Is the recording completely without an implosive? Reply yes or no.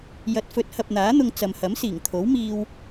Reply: yes